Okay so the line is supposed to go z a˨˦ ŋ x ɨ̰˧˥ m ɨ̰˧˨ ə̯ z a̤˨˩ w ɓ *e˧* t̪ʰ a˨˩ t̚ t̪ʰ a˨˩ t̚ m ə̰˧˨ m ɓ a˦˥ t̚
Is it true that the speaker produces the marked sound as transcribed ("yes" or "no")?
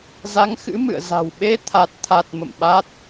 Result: yes